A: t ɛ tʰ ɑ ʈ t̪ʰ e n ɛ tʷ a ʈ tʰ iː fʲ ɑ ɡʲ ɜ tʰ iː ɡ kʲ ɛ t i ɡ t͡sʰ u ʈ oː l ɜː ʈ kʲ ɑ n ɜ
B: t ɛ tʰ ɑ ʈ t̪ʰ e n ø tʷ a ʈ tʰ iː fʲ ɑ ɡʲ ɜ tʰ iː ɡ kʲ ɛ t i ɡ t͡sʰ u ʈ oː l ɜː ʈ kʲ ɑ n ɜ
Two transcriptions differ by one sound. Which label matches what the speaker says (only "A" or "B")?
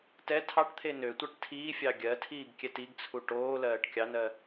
B